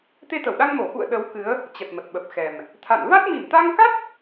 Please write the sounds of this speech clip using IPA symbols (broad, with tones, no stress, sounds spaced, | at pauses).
t̪ e˧ t̪ ə˧˩ w ɗ a˧ ŋ m o˧˩ x ṵ˧˨ ə̯ ɗ ə˨˦ w k ɨ˨˦ ə̯ | t͡ɕ ə˨˩ t̚ m ə˨˩ t̚ ɓ ə˨˩ p̚ x ɛ˨˩ m | t̪ʰ a̰˧˨ n v a˦˥ t̚ m i˧˩ m t̪ a˧ ŋ k a˦˥ t̚